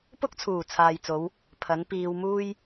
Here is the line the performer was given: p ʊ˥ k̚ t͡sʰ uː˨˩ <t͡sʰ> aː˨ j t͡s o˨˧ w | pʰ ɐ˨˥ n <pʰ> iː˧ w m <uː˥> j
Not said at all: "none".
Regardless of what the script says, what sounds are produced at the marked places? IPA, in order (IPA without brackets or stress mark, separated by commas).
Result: t͡sʰ, p, uː˥